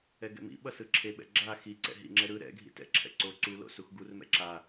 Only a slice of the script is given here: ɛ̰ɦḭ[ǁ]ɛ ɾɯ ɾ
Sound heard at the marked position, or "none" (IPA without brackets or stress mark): ŋ͡ǁ